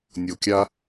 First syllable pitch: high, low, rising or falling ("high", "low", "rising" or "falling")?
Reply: low